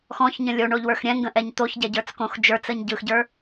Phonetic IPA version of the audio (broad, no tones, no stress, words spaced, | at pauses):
xɔ̃çɲə̃ lʲoɳoʎwə˞x ɾʲɛ̃ŋɡə̃ʔɛɲ t̪oçɟɛɟə˞t͡skõx d͡ʒə˞t͡səɲ ɟɯxɟə˞